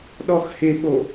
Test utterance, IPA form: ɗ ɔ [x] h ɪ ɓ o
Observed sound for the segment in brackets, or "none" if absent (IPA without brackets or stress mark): x